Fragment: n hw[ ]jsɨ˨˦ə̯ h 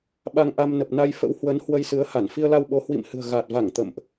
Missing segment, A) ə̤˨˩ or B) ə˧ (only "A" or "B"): B